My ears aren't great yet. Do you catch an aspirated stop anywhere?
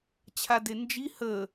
yes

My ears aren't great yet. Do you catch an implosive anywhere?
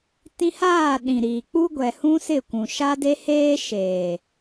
yes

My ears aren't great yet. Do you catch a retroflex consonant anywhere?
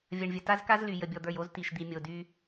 yes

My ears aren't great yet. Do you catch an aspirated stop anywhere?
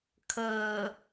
yes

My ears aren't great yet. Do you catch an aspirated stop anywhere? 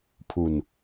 yes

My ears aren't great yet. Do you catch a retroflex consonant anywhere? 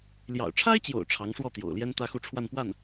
yes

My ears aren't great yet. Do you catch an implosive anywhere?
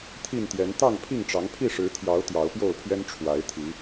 no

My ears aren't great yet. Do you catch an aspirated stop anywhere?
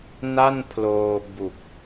yes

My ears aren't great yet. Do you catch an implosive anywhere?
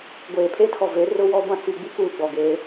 no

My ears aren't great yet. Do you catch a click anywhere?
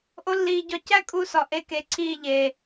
yes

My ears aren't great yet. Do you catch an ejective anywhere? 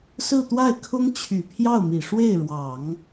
no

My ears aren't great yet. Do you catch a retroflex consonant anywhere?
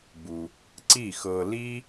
no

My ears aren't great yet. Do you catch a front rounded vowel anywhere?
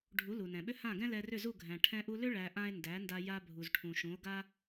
yes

